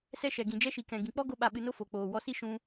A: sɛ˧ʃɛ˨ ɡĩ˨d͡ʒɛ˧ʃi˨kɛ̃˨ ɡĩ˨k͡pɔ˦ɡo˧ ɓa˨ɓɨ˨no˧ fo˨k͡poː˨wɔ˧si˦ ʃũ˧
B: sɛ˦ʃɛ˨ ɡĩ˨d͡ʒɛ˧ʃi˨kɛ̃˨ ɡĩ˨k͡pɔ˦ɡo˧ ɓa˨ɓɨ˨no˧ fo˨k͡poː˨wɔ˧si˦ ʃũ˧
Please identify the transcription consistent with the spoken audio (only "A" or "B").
B